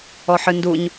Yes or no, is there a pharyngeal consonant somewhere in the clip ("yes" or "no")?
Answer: yes